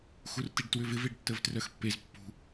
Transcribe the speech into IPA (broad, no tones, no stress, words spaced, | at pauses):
xurtiɖtwʏvɪv eɖtːəvtrœxpːez pːṳ